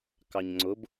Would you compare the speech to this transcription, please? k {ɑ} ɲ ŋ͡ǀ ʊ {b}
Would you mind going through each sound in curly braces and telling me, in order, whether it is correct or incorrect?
correct, correct

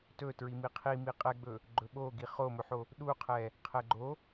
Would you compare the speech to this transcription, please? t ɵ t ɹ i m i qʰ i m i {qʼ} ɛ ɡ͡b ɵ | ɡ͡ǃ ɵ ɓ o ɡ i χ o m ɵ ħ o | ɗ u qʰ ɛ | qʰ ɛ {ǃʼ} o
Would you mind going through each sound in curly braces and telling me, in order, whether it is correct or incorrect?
correct, incorrect: ɡ͡ǃ

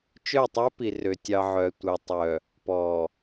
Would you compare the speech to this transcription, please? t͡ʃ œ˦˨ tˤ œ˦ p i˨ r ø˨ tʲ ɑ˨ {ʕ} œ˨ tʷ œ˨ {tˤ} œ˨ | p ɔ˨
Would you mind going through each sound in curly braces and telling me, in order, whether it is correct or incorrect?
correct, correct

